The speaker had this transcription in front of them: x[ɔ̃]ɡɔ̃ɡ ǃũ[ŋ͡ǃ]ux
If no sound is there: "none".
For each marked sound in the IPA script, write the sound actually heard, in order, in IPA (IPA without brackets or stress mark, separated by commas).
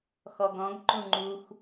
ɔ, ŋ͡ǃ